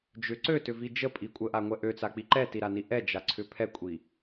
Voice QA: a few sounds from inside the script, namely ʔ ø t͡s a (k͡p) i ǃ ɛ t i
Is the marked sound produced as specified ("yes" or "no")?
yes